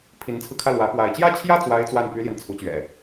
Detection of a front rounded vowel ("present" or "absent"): present